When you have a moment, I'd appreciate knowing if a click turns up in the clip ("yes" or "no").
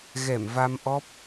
no